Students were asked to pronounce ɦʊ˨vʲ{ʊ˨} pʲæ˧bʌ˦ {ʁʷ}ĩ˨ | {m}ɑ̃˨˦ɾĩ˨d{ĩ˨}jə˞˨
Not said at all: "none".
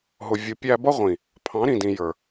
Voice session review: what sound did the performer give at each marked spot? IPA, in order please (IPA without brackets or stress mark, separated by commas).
ʊ˨, ʁʷ, pʰ, ĩ˨